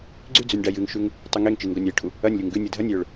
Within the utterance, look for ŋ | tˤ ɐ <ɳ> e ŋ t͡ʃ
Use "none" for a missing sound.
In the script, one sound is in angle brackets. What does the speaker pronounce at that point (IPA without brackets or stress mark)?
ŋ